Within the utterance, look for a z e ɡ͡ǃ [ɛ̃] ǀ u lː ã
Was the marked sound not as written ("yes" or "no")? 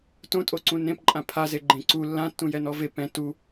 yes